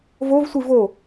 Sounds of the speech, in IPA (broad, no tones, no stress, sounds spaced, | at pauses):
v o v sʷ i v o